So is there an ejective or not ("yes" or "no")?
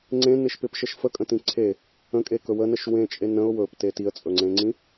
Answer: yes